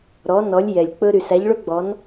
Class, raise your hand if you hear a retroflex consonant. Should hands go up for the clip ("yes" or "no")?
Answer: yes